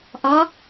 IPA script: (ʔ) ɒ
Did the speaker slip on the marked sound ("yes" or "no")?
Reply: no